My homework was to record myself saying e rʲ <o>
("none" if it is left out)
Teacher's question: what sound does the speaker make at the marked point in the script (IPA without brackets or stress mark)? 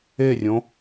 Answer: õ